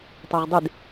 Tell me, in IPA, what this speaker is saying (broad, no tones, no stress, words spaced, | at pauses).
tˤɛʁdˤɪd